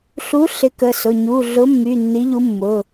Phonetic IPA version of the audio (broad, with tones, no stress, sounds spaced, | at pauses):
ɬ u˨˥ ɬ ɪ˨˥ k ə˩˧˩ s ʊ˩˧˩ ɲ u˩˧˩ ɮ ʊ˨˥ mː y˩˧˩ nː i˨˥ ʎ u˨˥ mː ʊ˩˧˩